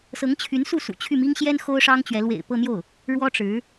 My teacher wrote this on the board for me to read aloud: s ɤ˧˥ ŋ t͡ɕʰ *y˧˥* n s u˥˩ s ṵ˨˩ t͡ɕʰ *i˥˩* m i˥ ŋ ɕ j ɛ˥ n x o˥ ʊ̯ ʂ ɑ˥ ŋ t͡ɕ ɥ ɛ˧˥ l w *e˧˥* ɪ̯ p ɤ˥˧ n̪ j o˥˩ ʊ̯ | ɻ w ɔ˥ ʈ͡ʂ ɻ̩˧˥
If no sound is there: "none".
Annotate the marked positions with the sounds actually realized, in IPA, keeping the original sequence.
y˧˥, y˥˩, ḛ˨˩

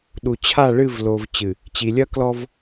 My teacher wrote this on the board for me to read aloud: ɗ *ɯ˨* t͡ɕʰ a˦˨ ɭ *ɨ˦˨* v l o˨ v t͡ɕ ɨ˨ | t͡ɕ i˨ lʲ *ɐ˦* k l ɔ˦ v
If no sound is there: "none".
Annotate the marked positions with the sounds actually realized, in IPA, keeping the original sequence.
u˨, ɨ˦˨, ɐ˦

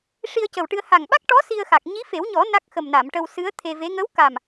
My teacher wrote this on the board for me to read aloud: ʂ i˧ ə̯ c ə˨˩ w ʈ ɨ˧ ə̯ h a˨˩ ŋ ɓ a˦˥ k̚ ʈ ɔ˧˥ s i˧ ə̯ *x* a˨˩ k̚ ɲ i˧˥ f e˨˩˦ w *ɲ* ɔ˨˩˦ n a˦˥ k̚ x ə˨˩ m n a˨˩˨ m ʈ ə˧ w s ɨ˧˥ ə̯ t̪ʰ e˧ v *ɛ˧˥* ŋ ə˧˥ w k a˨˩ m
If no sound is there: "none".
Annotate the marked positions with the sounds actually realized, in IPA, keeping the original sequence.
x, ɲ, e˧˥

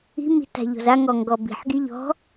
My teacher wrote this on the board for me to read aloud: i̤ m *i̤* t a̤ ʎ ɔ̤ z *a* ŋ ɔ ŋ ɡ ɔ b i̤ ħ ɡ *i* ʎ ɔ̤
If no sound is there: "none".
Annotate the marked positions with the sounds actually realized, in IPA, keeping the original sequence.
i̤, a, i

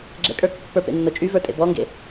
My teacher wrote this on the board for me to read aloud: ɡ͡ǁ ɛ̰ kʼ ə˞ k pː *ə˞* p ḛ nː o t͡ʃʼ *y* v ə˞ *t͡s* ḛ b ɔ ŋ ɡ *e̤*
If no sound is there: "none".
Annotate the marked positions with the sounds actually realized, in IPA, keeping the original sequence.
ə˞, y, tʼ, ḛ

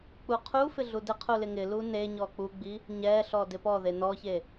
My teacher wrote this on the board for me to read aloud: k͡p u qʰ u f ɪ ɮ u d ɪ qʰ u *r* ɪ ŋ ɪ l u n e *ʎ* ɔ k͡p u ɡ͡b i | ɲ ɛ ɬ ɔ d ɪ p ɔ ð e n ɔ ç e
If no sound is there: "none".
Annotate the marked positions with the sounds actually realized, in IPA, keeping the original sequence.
l, ɲ

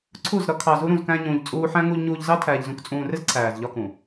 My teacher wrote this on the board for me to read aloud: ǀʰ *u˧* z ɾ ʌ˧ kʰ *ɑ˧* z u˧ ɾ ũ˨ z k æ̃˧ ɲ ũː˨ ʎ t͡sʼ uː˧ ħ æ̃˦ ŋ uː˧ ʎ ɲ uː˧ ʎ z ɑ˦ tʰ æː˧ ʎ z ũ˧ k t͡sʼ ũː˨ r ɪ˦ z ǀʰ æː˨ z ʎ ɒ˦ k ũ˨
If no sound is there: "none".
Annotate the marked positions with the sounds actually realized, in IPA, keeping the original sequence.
u˦˨, ɑ˨

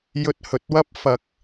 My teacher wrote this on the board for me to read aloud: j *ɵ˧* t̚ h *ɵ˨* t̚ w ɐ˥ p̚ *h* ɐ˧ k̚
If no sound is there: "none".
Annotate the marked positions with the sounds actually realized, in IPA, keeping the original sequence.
ɵ˧, ɵ˨, f

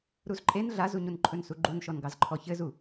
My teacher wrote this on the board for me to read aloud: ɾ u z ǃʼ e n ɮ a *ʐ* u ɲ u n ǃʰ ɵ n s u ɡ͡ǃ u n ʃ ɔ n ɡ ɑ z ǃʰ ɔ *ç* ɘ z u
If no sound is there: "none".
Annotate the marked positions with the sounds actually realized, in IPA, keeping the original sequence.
z, ç

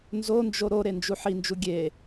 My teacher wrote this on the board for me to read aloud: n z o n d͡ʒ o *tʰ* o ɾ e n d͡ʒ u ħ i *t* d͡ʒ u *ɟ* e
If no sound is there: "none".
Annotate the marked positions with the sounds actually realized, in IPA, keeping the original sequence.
ɾ, n, ɡʲ

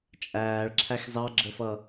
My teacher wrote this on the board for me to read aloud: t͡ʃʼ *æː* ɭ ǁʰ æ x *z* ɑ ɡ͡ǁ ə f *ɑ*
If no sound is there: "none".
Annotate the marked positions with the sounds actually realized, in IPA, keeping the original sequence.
æː, z, ʌ

